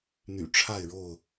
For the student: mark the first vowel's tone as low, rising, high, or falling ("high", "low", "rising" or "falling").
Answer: low